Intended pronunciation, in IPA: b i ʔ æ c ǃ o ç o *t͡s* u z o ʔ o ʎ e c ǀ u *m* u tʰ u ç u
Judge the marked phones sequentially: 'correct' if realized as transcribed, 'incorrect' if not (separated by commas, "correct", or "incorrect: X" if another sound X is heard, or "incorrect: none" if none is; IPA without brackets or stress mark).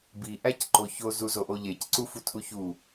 incorrect: z, incorrect: f